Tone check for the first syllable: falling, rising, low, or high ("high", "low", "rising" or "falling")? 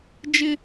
high